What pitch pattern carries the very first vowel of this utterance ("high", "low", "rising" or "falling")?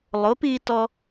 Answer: rising